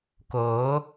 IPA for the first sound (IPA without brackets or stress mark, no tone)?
k